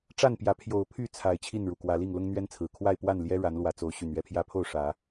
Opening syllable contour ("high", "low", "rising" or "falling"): falling